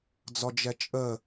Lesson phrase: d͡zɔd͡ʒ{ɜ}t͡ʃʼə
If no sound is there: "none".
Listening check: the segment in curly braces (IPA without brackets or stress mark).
ɛ